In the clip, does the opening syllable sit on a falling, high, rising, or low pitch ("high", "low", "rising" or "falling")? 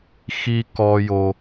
high